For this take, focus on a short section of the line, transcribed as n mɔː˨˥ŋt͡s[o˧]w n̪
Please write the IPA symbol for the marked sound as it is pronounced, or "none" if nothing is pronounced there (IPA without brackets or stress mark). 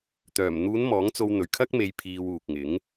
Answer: o˧